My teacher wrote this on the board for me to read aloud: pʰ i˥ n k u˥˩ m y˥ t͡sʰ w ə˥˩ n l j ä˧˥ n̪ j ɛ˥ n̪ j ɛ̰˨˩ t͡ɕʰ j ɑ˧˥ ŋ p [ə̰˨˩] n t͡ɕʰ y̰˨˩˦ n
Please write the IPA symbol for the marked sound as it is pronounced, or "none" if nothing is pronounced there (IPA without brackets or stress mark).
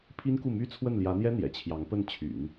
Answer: ə˥˩